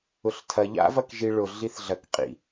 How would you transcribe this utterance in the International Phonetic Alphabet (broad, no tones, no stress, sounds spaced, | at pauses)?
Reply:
ʊ ɬ tʰ ɐ ʎ a̰ v ɐ k ʒ i ɭ ʊ ɮ i θ ɮ ɐ k qʼ ḭ